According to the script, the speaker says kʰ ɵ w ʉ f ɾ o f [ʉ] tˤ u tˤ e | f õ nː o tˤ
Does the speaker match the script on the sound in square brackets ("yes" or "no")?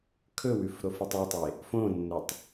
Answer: no